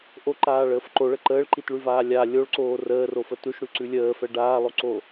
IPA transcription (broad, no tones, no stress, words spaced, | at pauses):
ʔoǃaːɭəːf ǃoɭə ǃəːɭǃitɭʉvaː lʲa lʲoɭǀoː rəːrofə tʉʃɽʉǀʉ lʲəːfɛ ɖaːlˠoǀo